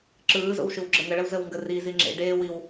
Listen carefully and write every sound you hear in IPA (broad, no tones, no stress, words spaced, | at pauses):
ǁɯːzo̰w ʃɨwɡ͡ǁəŋəɭəw zəwŋɡərizi ŋ͡ǁḛ ɖeːwiw